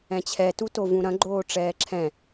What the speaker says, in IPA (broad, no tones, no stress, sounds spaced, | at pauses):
ɛ̃ t͡ɕʰ ɛ t u t o v ũ ɾ ɐ̃ ɡ͡ǃ oː ʈ͡ʂ ɛː ǁʰ ɛ̃